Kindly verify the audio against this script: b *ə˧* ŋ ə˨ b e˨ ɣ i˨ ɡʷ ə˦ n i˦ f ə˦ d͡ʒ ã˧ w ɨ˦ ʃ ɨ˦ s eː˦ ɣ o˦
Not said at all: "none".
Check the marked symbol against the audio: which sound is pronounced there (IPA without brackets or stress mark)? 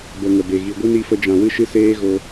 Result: ə˧